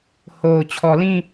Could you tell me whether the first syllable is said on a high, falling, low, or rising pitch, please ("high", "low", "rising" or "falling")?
low